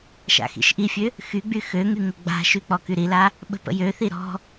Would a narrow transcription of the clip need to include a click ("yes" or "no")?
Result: no